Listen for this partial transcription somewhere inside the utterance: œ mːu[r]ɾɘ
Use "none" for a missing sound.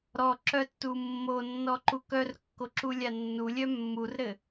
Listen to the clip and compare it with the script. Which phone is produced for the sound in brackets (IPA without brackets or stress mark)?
r